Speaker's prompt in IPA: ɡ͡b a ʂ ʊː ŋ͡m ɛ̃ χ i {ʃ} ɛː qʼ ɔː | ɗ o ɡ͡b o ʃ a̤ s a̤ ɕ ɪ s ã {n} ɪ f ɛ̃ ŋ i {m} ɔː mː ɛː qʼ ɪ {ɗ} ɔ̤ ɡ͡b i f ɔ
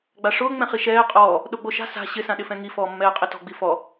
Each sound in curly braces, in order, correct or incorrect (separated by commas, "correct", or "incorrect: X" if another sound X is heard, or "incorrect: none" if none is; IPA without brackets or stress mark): correct, incorrect: ɗ, incorrect: f, incorrect: t